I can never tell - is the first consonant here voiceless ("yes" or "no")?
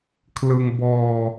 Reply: yes